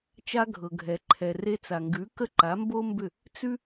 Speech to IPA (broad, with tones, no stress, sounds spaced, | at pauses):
t͡ʃ a˧ ɡʱ ɤ˩ ɡʱ ɛ˩ ǃʰ ɛ˩ r e˧ t͡s a˩ ŋ ɡ ʉ˩˥ k ə˥˩ ǃ a˩˥ m b o˥ m b ʏ˥˩ | t͡s ʉ˥